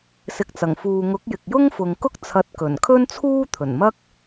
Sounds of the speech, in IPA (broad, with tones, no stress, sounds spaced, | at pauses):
s ɪ˨ k̚ t͡s ɐ˨˩ ŋ f uː˨ ŋ ʊ˨˥ k̚ j ɪ˨ k̚ j ʊ˥ ŋ f ʊ˨ ŋ k ʊ˥ k̚ t͡sʰ ɐ˨˥ t̚ k ɵ˨˩ n kʰ ɵ˥ n t͡sʰ uː˥ t̪ʰ ɵ˨˩ n m ɐ˥ k̚